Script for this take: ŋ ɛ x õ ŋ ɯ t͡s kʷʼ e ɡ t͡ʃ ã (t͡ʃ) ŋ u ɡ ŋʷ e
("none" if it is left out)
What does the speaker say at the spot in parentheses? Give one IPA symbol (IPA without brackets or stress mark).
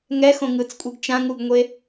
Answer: none